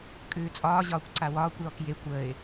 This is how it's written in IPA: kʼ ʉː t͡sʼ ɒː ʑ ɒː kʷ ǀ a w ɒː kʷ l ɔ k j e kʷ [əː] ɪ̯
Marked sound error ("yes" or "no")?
no